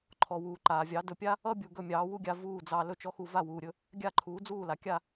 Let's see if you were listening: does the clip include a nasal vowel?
no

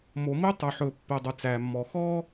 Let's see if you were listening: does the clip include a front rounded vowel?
yes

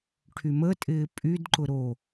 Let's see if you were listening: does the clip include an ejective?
yes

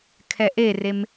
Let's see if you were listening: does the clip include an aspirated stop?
yes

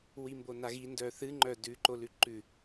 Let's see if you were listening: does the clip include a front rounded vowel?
yes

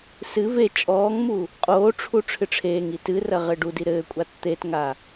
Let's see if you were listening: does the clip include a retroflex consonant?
yes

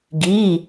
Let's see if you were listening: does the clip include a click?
no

